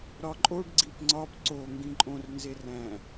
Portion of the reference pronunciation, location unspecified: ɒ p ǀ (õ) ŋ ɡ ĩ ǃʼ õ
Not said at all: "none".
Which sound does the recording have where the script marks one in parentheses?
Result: o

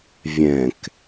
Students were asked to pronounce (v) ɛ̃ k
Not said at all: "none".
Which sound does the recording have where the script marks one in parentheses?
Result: vʲ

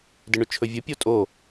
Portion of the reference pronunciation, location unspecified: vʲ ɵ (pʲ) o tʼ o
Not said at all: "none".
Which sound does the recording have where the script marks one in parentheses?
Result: pʲ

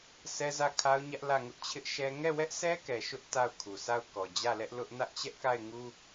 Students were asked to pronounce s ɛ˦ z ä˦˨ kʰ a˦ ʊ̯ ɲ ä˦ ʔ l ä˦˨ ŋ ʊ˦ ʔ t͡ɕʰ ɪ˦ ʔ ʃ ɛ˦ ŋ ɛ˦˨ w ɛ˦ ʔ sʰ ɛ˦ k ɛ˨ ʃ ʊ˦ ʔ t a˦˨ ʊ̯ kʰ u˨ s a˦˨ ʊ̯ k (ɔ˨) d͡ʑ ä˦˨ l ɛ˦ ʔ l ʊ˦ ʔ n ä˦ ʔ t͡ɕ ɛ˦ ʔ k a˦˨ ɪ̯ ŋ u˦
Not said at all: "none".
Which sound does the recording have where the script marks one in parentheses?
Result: ɔ˨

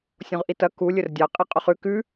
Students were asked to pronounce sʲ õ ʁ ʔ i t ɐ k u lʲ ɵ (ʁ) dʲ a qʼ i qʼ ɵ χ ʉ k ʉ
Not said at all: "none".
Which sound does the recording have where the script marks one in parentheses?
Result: r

